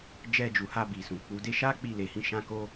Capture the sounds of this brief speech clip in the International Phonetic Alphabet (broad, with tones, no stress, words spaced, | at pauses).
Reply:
d͡ʒɛ˧d͡ʒu˨ha˧ bi˨sũ˨k͡pu˨˦de˦ ʃa˦k͡pi˧le˨hĩ˧ ʃã˦ko˦